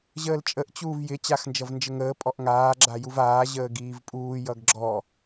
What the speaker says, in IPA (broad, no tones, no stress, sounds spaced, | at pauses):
ʑ əː l t͡ʃʼ ə ʔ t͡ɕ uː v j ɪ t͡ɕ a x n d͡ʒ ʌ v n d͡ʒ ə ŋ əː pʼ ɔ ʔ ŋ aː ɡ͡ǁ a j u v aː ʑ əː ɡ iː v pʼ uː j ʌ ɡ ɡ͡ǁ ɔ